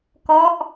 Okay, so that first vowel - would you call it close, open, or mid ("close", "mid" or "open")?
mid